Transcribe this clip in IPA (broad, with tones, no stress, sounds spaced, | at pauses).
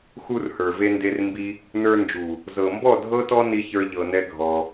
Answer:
x u˧ r h ə˞˨ v e˧ n d e˧ r m b i˦ | n ə˞˧ n d͡ʒ u˨ | z ɤ˨ m b ɔ˦˨ dʱ ɤ˦ t ɔ˦ n i˧ ç ə˞˧ ʎ ɤ˧ n ɛ˦ ɡʱ ɔ˧